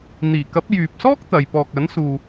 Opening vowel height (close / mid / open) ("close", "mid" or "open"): close